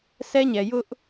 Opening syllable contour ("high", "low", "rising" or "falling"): high